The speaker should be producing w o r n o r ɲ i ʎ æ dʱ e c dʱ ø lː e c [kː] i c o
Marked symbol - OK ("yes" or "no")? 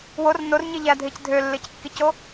yes